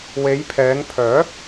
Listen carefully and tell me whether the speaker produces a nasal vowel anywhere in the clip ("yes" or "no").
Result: no